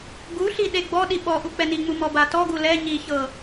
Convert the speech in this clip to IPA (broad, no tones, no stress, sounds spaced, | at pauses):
ɡ u ɬ i ɗ e ɡ͡b ɔ ɗ i ɓ ɔ ʔ u k͡p ɛ n i ŋ͡m u m ɔ b a t ɔ ɡ u l ɛ ɲ i ç ɤ